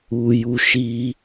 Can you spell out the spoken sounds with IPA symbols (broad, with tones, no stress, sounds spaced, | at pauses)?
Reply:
u˧ j u˧ ʃ i˧